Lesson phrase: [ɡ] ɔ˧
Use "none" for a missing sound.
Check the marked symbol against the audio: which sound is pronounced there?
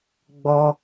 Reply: ɡ͡b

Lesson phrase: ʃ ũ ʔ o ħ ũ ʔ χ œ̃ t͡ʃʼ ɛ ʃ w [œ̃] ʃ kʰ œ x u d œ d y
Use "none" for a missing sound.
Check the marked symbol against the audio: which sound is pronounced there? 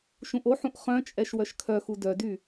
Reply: œ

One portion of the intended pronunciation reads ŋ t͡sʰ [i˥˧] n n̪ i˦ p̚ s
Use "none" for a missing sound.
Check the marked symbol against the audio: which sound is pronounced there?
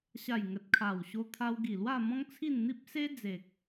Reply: i˥˧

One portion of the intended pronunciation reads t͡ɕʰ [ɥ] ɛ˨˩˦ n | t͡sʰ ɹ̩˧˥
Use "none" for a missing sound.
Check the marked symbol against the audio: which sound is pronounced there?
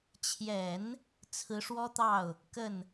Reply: j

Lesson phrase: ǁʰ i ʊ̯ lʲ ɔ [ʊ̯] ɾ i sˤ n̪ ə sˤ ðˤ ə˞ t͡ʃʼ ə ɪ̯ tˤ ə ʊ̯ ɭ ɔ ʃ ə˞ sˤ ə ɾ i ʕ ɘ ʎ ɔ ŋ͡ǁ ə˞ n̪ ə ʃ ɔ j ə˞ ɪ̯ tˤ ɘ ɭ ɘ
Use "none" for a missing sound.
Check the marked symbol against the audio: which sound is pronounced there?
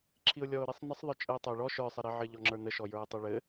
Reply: ʊ̯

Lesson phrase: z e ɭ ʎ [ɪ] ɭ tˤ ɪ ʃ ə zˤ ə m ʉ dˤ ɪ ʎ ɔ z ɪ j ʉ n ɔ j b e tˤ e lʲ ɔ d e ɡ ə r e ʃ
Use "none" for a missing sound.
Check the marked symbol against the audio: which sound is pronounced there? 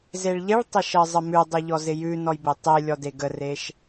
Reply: ɪ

